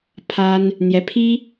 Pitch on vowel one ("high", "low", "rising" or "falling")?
high